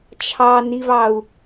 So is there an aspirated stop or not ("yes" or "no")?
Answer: yes